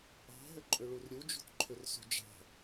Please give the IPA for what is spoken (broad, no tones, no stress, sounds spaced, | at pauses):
ɑ̤ ɦ ʏ ǃʼ ʏ ɭ u r ɾʲ u d͡ʒ ṳ t ǃʰ ʏ r s ṳ d͡ʒ ɑ̤